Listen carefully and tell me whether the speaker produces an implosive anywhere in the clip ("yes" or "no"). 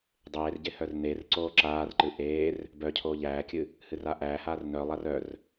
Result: no